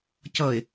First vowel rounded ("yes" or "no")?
no